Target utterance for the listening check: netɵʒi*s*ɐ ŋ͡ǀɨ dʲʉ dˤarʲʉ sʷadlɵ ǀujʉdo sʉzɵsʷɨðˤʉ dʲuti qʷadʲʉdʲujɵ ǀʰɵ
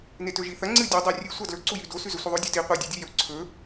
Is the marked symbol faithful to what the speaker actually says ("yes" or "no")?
no